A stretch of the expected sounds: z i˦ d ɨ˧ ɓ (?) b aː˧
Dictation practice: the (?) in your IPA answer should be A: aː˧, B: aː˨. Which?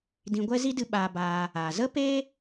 A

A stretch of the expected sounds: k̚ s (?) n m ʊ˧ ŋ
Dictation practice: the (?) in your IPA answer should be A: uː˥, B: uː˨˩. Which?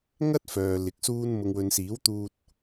A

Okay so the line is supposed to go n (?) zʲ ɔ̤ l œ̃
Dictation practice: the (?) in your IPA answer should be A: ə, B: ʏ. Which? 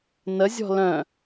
A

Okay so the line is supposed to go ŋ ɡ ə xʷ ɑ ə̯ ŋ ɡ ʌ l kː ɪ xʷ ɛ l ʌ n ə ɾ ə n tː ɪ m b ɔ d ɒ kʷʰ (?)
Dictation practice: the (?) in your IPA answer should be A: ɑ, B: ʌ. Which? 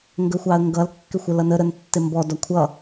B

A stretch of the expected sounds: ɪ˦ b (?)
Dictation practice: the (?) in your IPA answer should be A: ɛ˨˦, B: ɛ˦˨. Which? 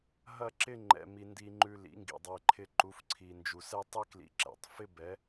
A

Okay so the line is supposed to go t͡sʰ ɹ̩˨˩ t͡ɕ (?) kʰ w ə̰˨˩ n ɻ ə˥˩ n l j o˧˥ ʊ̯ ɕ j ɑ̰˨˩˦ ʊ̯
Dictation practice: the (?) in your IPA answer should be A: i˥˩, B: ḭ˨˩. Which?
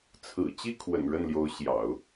A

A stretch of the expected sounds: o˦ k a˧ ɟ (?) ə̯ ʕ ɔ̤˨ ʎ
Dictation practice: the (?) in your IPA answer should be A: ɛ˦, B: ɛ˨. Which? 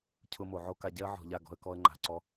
A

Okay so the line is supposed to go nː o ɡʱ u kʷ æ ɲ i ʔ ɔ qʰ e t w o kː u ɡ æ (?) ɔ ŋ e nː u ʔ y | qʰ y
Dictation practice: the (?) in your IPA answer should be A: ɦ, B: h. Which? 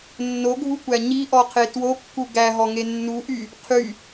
A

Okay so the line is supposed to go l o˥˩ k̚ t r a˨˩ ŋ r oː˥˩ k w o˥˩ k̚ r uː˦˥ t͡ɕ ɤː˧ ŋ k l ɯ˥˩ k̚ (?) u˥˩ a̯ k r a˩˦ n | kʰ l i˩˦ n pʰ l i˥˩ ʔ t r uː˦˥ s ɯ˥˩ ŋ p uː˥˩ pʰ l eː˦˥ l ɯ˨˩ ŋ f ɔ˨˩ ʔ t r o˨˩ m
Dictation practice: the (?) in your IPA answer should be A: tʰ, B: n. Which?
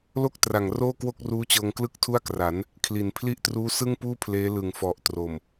A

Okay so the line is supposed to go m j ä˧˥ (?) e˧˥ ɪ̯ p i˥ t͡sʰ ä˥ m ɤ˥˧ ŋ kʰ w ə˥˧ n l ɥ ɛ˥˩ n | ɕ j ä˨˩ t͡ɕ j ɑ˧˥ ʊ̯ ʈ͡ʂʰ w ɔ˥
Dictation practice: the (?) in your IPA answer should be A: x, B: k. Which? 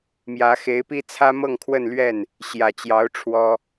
A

